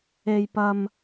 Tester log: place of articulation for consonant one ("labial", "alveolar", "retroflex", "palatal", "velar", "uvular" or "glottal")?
palatal